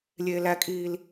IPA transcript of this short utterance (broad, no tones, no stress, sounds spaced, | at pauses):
lʲ eː l æ kʼ iː l